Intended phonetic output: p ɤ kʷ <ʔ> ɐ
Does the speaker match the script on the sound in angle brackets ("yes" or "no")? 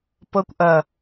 yes